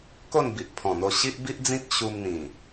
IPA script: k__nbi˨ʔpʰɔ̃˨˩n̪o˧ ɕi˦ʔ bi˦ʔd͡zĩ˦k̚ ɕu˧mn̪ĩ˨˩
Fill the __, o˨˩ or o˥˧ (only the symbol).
o˥˧